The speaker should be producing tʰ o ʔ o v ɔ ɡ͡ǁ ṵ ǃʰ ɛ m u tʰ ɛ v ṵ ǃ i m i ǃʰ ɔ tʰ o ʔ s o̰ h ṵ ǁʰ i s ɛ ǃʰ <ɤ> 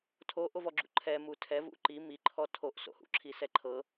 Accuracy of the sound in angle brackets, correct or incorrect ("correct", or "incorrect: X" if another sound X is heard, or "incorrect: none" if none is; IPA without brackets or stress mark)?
correct